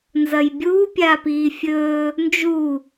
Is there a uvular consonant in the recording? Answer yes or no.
no